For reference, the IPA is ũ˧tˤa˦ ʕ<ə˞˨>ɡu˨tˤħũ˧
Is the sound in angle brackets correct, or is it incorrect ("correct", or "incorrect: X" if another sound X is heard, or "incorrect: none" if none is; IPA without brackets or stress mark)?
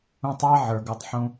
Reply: correct